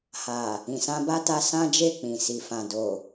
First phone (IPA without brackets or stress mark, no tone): h